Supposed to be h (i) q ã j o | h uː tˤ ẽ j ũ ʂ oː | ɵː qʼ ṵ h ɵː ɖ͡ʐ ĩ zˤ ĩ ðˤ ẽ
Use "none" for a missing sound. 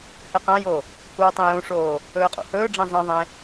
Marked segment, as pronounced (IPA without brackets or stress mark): ɨ